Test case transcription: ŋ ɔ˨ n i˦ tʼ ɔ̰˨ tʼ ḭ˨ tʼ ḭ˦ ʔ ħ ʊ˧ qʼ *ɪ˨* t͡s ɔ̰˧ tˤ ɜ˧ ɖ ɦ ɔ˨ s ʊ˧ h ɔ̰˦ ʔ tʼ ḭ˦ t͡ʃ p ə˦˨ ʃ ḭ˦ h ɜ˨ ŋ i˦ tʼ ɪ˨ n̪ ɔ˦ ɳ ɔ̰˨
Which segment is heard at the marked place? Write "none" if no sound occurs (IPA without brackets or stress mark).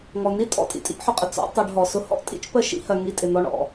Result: ɪ˨